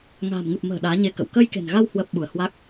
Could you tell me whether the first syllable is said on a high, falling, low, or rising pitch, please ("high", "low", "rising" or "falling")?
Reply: low